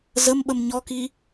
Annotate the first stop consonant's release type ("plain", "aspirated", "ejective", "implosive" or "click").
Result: implosive